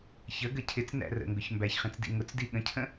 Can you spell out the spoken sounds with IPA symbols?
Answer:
ç ə ɡ ə cʰ ɪ t͡s n æ̰ r ə̰ ŋ ɡ ʊ ç m b æ ç χ ĩ t͡s d ḭ ŋ ʊ t͡s d i ɠ ə̃ cʰ ə̃

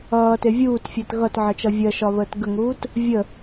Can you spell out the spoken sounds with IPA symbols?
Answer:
ʌː t e vʲ uː t fʲ əː t ɣ ʌ t ʕ ə t͡ʃ ʌ vʲ ɜ ʃ ɒ β əː t ɡ ə ŋ uː t | vʲ ə

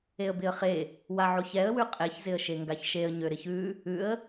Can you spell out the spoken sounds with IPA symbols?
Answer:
e ə̯ b ɪ ə̯ χ e | w a ʕ o ç ɛ ə̯ w ʉ qʼ e ç z ɪ ə̯ ʃ e ŋ ɡ a ç ʃ e ə̯ ɲ ø ɾ ɪ ç ʉ | ʉ ə̯

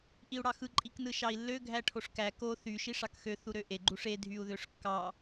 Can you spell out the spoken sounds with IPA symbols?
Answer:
ʔ i u̯ ɽ ɑ x ɯ ǃʼ i k n ɯ ʃ ɑ i̯ lː ø ɡʱ æ ʈʰ o ʂ k æ k o θ y ʃ i ʂ ɑ k x ø θ u ɾ ø ʔ e ɡ͡ǃ u ʂ e dʱ y u̯ ð ø ʂ kː ɑ

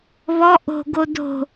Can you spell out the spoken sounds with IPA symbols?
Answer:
β ɔ ʔ o̤ ɡ o d o̤

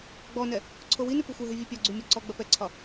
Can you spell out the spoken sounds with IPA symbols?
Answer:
ɡ͡b ɔ n ɛ | ǀʰ o w i n ʉ p u xʷ ɐ ɦ ʉ vʲ ʉ pʲ ɒ ɡ͡ǀ y mʲ ɒ ǀ ɔ ɡ͡b ɐ p ɛ ǀʰ ɒ

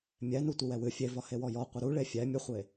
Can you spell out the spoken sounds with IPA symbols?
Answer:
mʲ ɛ n u tʷ ɪ w ɛ w ɨ fʲ e v ɒ h e w ɔ j ɔ qʷ ə ɾ u ɭ e fʲ ɛ mʲ ə χʷ e

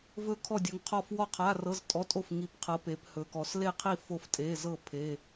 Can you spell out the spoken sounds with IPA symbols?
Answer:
v ɵ˥˨ kʰ ɔ˥˨ dʲ ɵ˨˦ ŋ qʰ ɔ˥˨ f w ɔ˥˨ qʰ a˧˥˧ r ɤ˧˥˧ z tʼ ɔ˧˥˧ tʼ o˥˨ f ŋ i˨˦ p qʰ ɤ˨˦ p e˨˦ p h ɵ˨˦ k ɔ˨˦ s l e˥˨ qʰ i˥˨ f o˥˨ f tʼ e˧˥˧ z ɤ˥˨ pʰ e˧˥˧

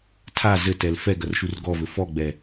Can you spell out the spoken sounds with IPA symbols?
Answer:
tʰ a z ɘ t ɛ l f ɛ ɡ ɐ r ʃ u r ɡ ɔ v ɘ f ɔ ɡ͡b ɛ

